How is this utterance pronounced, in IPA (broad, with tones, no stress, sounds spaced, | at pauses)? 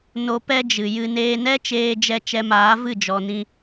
n o˧ p ɛ˦ d͡ʒ ɨ˨ j ɨ˦ n eː˧ n ɛ˦ t͡ʃ eː˧ d͡ʒ ɛ˧ t͡ʃ ɛ˧ m aː˨˦ v ɨ˦˨ d͡ʒ ɔ˨ n ĩ˧